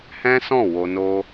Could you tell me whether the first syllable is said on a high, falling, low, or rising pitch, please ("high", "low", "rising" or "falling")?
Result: high